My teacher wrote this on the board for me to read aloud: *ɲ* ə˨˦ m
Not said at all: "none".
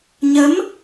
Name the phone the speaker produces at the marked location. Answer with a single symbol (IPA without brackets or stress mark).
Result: ɲ